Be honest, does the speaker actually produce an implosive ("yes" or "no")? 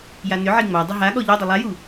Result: yes